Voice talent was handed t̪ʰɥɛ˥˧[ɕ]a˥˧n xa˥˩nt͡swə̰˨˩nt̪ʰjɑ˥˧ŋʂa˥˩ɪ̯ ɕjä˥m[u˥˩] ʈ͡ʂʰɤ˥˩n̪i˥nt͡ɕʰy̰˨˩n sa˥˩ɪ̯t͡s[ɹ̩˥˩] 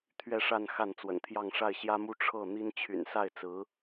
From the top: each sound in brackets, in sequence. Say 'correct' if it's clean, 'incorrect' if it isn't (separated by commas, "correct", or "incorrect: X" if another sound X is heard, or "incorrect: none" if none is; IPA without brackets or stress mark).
incorrect: ʂ, incorrect: u˥, incorrect: ɹ̩˧˥